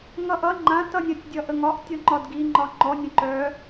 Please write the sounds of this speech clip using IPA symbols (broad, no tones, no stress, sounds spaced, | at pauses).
ŋ ʌ ʔ ʌ ŋ͡ǃ ã t ʌ nʲ ə tʲ dʲ ʌ ʔ ə ŋ ɒ ʔ tʲ ɔ ŋ͡ǃ ɒ d ɡ i ŋ͡ǃ ɒ ŋ͡ǃ ɔ nʲ ə̃ ǃ œ